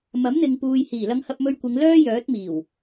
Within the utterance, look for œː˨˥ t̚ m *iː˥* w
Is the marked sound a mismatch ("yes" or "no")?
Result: yes